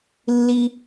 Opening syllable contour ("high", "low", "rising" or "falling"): high